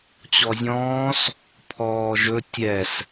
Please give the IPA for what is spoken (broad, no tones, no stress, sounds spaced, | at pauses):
t͡ɕ ɔ zʲ ɔ̃ː s | pʰ ɔː ʒ ɵ tʲ ɛ s